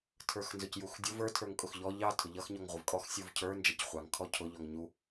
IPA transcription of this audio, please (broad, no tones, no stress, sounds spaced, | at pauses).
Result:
tʰ ə˞ x n z ʊ c j u x dʲ ʊ v ə˞ tʰ ə˞ ŋ kʼ ʊ x ʎ ɔ ʎ ɑ tʰ ʊ ʎ ʌ x ɲ ɔ ŋ ʁʷ ə v kʼ ɔ x sʲ u v cʰ ə˞ n d͡ʒ ʌ c χʷ ɑ ŋ kʰ ɔ cʰ ʊ ʎ ɔ ŋ ɲ u